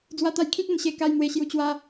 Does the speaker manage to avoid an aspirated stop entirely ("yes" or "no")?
no